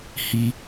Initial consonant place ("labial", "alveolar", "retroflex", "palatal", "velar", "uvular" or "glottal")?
glottal